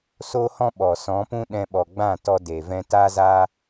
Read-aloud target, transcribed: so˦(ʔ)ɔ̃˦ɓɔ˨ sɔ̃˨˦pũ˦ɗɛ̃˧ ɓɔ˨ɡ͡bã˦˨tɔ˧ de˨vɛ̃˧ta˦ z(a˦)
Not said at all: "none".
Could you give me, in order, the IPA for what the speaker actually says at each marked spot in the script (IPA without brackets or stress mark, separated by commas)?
h, a˦